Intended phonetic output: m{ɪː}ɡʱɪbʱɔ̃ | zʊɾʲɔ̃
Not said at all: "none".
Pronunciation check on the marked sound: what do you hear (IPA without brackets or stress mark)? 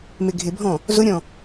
ɪ